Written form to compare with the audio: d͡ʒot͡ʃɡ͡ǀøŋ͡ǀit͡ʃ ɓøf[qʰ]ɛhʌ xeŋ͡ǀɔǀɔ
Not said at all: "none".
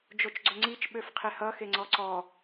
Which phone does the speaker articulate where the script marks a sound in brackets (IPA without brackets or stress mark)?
qʰ